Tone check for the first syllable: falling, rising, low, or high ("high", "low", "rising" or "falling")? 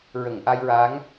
low